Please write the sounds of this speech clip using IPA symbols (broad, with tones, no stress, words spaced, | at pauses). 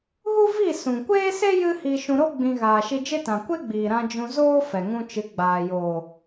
ɣu˦vi˦˨ sũ˨kʷeː˦se˦ jɨ˦hi˧ʃũ˧ɾo˦ ɡ͡bĩ˧ ɣaː˨ʃi˧d͡ʒe˦tã˨ kʷe˦ɡ͡biː˨ɾã˧ d͡ʒũ˧zoː˦ fɛ˨ŋũ˧t͡ʃɨ˨˦ɡ͡baː˨ jo˨